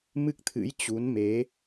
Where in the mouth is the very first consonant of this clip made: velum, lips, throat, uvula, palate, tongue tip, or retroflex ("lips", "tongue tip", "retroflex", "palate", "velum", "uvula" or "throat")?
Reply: lips